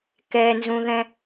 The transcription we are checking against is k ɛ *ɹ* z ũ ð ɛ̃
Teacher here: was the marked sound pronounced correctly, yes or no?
no